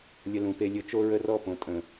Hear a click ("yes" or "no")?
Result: no